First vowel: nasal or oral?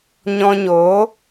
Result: nasal